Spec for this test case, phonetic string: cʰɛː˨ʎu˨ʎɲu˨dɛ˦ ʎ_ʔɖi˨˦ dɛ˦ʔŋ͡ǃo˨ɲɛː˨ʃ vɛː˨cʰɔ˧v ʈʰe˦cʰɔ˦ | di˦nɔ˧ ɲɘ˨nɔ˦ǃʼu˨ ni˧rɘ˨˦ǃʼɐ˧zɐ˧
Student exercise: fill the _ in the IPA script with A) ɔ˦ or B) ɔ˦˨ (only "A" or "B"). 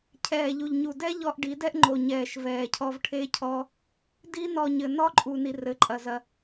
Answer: A